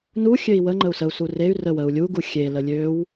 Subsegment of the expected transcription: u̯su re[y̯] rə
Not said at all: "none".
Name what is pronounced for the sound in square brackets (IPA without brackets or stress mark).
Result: y̯